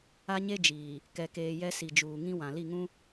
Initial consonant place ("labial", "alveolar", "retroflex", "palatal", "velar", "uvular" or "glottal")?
palatal